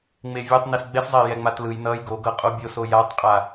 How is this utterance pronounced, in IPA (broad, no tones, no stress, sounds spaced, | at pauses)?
ŋ͡m e vʲ o tˤ n i s ɡ͡b ɛ s zˤ e j ɛ ŋ͡m a t l ɯ j n ʌ j ɡ o ɡ ʌ qʼ o bʲ o s o j a tˤ qʼ a